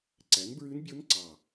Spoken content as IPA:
ǀ æ˨˥ n b ɹ ʉ˦˥ n bʲ o˦˥ n ǀ ɑ˨˩

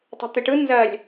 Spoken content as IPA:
tˤ e̤ t̪ ɪ ʈ ɯ n z ɜ lʲ

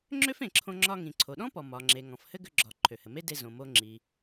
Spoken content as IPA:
ŋ͡ǁ ø˥ f ẽ˩ ǁʰ õ˧ ŋ͡ǁ ɒ˧ ŋ ĩ˩ ǀʰ o˩ ɗ ɔ̃˥ p ɔ˩ m ɒ˩ ŋ͡ǁ e˩ ŋ ɔ̃˩ f h ɘ˥ ɡ ʏ˧ ɡ͡ǁ ɒ˩ ǃʰ ø˩ h ɘ˩ m e˥ d e˧ z õ˩ m o˧ ŋ͡ǁ i˩

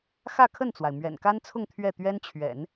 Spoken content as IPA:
x ä˥˧ kʰ ə˥˩ n t͡s w a˩ ɪ̯ m ɥ ɛ̰˨˩ n k a˥ n t͡sʰ ʊ˥˧ ŋ t̪ʰ ɥ ɛ˥˩ t̪ ɥ ɛ˥ n t͡ɕʰ ɥ ɛ̰˨˩˦ n

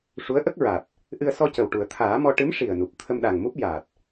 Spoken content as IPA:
ʂ u˧˥ ə̯ ʔ ə˦˥ k̚ ɹ a˨˩ t̚ | ʔ ɨ˧ ə̯ s ɔ˧ c ə˨˩ w ʈ u˨˩˨ ə̯ t̪ʰ aː˨˩˦ m ɔ˧ ʈ ɨ˧˥ m ʂ i˨˩ ə̯ n u˨˩ p̚ t̪ʰ ə˧ m ɗ a˨˩ ŋ m u˦˥ p̚ j a˨˩ t̚

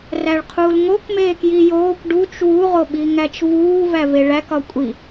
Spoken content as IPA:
r æ ɭ qʰ uː l ŋ o k m eː k j i j oː kʷ ɖ u t͡ʃ w u ʁ o ɓ i ŋ æ t͡ʃ v uː v æ v e ɭ æ k ɒ kʷʼ i

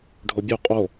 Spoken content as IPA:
ɖʱ o bʲ u qʼ o

